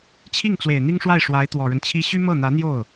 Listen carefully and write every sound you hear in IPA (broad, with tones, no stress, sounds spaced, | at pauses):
t͡ɕʰ i˥˩ ŋ t͡s w e˨˩ ɪ̯ n̪ i˥ ŋ ʂ w a˥˩ ɪ̯ ʂ w a˧˥ ɪ̯ t̪ w ɔ˨˩ ɻ ə˦ n t͡ɕʰ i˥ ɕ y˥ m ɤ˥˩ n̪ ä˧˥ n̪ j o˥˩ ʊ̯